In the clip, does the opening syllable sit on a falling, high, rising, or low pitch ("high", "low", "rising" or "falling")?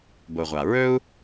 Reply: low